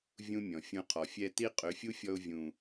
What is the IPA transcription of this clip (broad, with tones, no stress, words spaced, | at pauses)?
vʲũ˦mʲɔ̃˨ fʲũ˧qʰɔ˨ fʲɛ˧ti˦ qʼø˨˦fʲu˦fʲɔ˧ʊ̯ vʲũ˨